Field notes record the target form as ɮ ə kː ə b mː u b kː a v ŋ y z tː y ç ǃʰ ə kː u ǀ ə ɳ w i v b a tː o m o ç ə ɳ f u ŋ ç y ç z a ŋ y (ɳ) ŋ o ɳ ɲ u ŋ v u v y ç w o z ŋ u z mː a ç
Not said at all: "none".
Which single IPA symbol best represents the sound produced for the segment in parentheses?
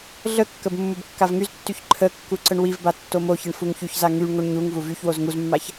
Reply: ɳ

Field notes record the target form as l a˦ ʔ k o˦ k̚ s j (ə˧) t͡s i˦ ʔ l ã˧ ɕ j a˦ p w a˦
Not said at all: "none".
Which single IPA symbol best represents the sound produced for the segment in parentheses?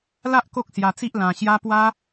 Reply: a˧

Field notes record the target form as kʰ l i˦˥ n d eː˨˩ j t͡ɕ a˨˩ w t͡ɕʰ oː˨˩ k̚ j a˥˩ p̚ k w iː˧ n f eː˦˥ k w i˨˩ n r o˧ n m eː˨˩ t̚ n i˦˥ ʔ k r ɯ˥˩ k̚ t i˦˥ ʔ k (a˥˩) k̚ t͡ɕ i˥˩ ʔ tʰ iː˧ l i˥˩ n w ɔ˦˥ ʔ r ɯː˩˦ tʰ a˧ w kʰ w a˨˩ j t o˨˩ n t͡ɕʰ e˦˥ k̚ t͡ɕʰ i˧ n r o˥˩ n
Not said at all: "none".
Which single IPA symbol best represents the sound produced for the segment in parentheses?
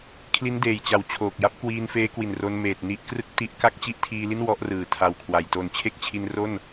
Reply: a˥˩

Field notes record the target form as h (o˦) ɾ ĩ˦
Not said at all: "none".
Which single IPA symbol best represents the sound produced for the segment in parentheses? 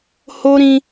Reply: o˦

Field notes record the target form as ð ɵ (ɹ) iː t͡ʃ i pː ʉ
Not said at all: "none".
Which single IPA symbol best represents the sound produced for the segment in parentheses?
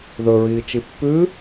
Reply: ɹ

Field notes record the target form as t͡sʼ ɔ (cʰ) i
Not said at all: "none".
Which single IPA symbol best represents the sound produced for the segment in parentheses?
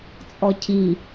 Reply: cʰ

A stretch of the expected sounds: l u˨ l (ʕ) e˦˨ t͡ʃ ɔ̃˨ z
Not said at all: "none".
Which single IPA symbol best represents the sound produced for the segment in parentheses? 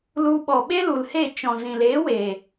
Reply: h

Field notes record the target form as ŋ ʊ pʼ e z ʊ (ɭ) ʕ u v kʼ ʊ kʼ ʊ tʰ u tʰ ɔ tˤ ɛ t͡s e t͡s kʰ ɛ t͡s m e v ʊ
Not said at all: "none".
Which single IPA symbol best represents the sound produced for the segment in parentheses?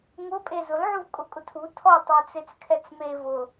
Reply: l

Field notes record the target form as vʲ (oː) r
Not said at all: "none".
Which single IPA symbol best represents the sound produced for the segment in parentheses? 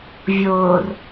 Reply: oː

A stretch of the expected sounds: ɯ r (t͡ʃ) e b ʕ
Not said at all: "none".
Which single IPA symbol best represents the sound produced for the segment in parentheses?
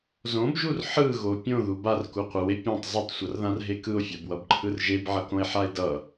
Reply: ʒ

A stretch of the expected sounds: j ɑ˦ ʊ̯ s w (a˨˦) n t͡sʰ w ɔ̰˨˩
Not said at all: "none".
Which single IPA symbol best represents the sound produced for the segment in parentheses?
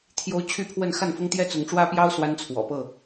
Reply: a˦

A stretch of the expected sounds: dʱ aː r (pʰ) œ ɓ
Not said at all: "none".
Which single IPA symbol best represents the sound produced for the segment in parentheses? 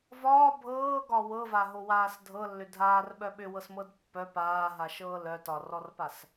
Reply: ɓ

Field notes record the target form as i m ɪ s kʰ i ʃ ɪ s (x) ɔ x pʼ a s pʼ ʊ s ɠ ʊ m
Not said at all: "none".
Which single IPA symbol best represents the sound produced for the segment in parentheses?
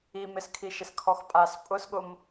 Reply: kʰ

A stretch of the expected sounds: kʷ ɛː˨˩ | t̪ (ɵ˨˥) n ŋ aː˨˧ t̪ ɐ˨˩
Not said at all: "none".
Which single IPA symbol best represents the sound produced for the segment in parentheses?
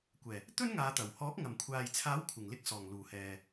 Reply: ɵ˥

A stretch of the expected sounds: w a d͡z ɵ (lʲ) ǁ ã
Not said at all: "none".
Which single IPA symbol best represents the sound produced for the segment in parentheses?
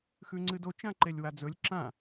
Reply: lʲ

